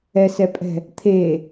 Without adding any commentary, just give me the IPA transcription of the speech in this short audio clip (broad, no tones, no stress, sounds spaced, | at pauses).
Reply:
ɛ s ɛ pʼ ɛ̤ | t̪ʰ e